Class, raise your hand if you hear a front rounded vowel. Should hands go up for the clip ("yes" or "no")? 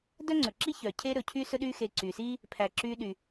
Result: yes